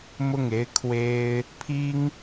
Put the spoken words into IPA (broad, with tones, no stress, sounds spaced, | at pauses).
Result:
m ʊ˥˩ ŋ e˥ ɪ̯ kʰ w e˥ ɪ̯ | pʰ i˥ ŋ